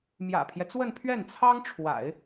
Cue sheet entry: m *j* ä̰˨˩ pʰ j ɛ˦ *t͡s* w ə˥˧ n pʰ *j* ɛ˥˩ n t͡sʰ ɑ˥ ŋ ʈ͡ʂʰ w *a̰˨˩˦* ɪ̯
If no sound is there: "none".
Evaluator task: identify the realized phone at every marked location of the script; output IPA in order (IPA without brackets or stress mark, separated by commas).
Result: j, t͡s, ɥ, a̰˨˩˦